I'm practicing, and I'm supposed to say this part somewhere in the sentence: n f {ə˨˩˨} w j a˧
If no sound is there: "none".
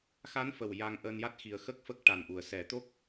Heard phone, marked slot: ə˨˩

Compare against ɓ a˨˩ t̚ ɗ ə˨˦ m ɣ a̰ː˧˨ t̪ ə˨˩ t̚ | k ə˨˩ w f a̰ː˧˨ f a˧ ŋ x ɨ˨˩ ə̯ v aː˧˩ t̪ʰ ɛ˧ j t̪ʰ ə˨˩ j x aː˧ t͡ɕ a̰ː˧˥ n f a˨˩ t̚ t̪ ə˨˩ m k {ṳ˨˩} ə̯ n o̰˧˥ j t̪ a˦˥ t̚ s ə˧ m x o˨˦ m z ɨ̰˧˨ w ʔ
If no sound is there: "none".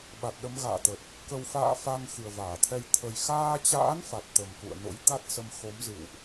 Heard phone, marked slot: ṵ˧˨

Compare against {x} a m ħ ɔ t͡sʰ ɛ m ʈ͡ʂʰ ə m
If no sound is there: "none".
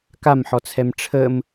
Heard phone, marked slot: k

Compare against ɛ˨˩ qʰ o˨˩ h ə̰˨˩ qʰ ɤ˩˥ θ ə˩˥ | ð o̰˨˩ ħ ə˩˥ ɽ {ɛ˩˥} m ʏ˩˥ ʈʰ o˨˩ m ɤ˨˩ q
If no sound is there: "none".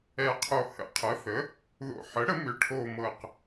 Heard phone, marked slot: ə˩˥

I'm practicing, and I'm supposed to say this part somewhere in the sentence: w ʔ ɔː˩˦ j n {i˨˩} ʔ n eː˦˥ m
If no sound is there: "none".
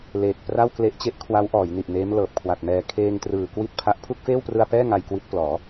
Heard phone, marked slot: i˨˩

